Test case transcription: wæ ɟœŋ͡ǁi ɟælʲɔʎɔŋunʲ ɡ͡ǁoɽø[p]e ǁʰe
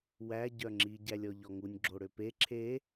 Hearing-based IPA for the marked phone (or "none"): p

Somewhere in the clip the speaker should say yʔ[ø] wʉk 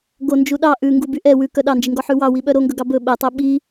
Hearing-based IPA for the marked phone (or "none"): ɛ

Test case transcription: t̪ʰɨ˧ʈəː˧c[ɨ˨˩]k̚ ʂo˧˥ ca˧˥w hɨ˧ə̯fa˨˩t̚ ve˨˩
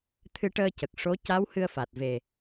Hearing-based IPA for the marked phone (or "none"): ə˨˩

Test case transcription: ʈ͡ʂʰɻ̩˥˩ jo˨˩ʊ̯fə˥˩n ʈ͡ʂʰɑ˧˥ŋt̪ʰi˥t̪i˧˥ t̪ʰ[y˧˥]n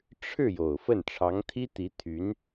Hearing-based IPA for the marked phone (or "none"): y˧˥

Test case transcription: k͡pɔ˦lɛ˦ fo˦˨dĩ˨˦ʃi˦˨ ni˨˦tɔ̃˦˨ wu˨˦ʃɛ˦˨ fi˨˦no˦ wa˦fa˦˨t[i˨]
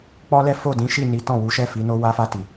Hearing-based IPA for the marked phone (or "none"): i˨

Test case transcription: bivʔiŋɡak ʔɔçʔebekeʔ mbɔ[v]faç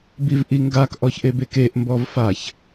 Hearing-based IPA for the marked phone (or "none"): v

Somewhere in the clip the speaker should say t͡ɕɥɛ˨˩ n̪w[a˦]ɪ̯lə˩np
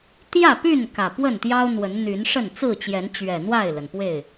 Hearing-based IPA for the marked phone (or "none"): a˥˨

